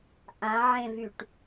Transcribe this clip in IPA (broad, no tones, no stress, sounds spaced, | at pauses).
ʔ ã ʕ ẽ v y ʈ